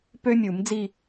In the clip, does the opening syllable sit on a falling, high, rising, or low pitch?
high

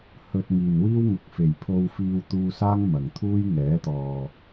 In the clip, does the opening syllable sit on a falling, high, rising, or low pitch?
low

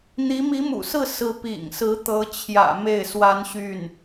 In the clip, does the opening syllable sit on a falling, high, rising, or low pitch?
rising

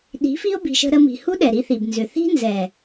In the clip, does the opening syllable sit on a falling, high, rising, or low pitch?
rising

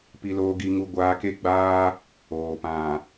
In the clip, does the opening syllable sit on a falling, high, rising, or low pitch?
low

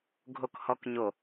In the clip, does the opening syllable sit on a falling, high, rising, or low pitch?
low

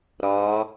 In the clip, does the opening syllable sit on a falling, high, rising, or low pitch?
rising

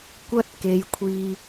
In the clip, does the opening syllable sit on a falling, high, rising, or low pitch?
high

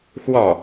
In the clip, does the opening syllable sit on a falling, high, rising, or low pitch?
falling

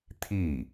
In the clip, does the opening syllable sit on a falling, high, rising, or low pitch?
falling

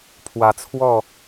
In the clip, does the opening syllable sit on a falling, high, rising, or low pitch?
rising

